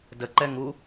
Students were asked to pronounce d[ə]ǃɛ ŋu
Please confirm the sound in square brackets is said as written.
yes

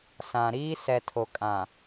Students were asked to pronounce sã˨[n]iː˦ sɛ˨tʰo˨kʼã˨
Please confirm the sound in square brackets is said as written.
no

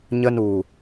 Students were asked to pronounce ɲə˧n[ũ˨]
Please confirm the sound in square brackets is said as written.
no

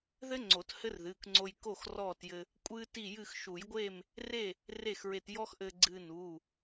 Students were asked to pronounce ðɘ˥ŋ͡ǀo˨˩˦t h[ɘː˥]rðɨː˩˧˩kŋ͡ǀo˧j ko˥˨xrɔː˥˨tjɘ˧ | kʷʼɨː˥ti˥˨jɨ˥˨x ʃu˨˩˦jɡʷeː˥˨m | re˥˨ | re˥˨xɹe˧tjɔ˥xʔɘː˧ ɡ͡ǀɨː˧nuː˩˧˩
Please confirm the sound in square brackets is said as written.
no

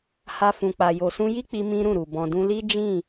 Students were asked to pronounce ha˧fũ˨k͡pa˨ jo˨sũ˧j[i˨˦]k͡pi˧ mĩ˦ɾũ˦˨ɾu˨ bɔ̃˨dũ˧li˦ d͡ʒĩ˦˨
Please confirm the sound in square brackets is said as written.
no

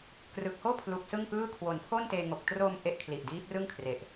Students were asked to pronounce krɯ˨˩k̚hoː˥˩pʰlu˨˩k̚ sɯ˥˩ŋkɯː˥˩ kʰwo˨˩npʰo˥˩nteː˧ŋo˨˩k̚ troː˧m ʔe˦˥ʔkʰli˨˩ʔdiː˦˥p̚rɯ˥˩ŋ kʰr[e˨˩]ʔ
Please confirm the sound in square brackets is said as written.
yes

